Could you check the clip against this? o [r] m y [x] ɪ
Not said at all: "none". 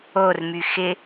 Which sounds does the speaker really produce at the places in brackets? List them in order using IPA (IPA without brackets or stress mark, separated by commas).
r, x